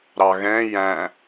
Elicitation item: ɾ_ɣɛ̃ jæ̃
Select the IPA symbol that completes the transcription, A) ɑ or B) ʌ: A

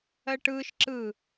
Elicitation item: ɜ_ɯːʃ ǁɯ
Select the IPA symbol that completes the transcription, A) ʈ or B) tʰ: A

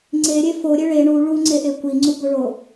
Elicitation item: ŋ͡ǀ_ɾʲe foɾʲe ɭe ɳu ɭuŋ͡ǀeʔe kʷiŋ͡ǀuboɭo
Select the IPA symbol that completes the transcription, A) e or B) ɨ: A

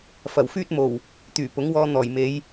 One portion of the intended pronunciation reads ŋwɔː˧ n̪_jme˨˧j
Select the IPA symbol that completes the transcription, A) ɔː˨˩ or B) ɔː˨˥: A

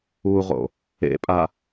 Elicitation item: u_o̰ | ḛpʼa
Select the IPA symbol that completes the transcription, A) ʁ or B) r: A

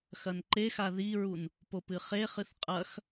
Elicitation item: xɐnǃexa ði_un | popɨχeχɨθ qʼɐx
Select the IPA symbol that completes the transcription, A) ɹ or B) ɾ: A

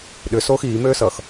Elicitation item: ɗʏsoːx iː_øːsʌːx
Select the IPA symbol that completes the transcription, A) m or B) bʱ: A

